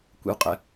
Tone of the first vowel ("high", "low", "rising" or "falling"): low